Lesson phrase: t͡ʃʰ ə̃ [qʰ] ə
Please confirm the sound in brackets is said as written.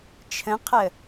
yes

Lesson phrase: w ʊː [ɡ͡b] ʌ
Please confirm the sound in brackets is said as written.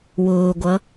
no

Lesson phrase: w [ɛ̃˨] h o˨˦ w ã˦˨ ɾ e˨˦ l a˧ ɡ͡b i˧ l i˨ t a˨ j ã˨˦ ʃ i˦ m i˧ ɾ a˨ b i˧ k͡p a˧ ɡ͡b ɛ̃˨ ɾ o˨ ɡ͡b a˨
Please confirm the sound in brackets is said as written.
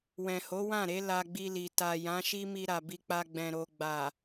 yes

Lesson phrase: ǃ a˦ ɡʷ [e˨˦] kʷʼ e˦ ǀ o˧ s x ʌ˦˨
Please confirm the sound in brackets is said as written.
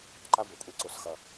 no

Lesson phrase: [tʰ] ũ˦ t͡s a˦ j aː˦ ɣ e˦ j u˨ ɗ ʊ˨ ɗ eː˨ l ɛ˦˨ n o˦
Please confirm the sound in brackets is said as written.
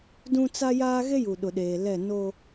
no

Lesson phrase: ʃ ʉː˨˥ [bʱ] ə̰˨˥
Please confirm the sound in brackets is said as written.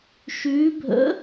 yes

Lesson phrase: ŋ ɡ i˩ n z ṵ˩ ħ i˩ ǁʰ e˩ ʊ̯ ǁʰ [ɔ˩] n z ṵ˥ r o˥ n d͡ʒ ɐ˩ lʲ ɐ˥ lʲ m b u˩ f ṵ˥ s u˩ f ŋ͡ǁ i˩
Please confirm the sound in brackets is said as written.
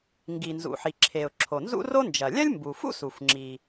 no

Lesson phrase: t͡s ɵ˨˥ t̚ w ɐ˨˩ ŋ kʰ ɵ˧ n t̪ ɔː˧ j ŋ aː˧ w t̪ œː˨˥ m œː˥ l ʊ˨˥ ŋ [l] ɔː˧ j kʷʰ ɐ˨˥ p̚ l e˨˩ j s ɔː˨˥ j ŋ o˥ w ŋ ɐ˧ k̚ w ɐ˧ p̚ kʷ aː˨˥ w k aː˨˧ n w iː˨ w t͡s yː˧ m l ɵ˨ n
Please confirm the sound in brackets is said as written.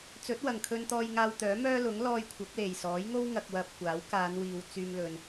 yes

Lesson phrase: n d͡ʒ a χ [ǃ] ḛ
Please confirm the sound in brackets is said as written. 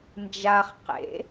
no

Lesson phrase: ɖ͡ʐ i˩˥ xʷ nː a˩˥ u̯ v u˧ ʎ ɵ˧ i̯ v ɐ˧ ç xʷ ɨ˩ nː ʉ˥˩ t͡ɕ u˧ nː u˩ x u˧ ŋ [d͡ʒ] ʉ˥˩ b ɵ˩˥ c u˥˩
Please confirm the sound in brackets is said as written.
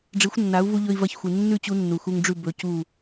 no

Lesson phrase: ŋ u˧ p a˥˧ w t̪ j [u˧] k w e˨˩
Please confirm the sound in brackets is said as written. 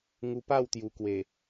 no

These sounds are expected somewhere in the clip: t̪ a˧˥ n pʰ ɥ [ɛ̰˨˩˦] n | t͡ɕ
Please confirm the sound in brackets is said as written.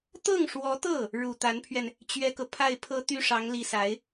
no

